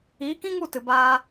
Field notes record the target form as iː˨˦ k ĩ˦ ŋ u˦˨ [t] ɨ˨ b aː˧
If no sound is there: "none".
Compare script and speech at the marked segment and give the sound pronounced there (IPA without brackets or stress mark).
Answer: t